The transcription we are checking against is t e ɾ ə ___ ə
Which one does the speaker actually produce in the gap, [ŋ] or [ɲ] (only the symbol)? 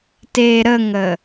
ŋ